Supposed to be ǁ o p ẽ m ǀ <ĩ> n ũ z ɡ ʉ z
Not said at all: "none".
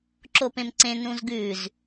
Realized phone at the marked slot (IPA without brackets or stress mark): ẽ